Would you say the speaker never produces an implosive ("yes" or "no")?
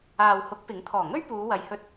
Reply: yes